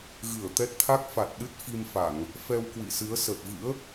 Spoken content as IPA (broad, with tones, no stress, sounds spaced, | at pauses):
ɣ ɨ˧˩ ə̯ t̪ ɛ˦˥ t̚ t̪ʰ a˦˥ k̚ f a˨˩ t̚ ɗ ɨ˦˥ t̚ f i˧ m f a˧˩˨ ŋ | f ɛ˧ w k w ḭ˧˨ s ɨ˨˦ ə̯ s ə˨˩ t̚ v ɨ̰˧˥ ə̯